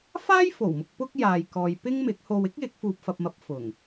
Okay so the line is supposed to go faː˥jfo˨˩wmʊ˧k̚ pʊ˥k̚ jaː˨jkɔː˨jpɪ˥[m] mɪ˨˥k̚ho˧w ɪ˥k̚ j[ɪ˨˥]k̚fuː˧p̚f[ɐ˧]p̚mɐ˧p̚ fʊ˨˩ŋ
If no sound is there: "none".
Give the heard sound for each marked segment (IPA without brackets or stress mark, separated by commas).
ŋ, ɪ˨˥, ɐ˧